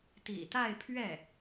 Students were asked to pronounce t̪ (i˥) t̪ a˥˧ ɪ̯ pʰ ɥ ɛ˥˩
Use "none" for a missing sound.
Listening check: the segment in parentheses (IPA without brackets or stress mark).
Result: ḭ˨˩